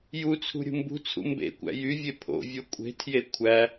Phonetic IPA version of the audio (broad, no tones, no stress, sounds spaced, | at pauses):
j u t͡sʰ ṳ ɾʲ ṳ m b ṳ t͡sʰ ṵ m b ḛ kʷ æ̰ j y vʲ e pʰ o̰ vʲ o kʷʼ e̤ tʰ j e kʷʰ æ